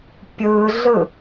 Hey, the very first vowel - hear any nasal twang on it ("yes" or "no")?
no